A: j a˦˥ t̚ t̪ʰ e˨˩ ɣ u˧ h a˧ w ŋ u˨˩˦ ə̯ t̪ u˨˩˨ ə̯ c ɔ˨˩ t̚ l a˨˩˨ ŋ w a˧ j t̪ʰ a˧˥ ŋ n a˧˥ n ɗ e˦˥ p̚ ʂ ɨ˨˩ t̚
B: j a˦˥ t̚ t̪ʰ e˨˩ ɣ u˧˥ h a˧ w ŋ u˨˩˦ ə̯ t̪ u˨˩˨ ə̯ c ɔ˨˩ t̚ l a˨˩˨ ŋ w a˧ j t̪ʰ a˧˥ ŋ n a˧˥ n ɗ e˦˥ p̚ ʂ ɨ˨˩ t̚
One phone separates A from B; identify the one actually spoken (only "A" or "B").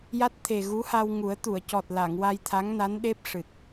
B